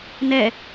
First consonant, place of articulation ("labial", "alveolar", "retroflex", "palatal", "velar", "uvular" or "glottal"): alveolar